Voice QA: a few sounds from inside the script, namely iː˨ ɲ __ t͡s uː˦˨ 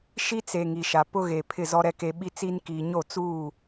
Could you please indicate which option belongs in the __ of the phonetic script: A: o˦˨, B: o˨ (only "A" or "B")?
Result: A